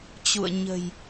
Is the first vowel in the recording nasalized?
no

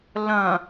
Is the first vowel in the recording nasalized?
yes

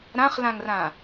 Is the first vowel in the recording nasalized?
yes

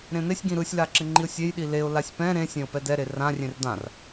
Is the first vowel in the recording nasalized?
yes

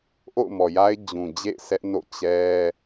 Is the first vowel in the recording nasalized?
no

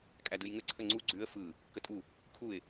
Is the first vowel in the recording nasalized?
no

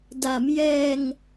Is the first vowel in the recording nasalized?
no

